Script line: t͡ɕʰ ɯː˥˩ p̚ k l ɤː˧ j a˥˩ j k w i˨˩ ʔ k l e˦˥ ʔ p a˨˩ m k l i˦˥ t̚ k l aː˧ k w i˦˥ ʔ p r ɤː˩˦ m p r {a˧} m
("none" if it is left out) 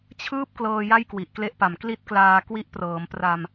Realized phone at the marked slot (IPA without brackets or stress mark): a˧